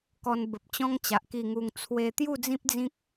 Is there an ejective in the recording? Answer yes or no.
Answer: no